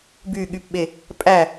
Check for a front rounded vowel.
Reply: present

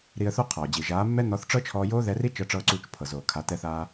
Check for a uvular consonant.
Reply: present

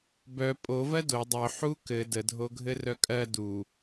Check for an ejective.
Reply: present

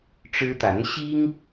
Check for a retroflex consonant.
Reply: present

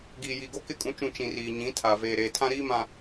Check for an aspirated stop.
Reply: present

